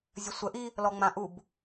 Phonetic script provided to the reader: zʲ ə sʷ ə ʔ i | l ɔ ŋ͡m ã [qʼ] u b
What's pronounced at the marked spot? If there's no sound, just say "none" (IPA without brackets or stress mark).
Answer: ʔ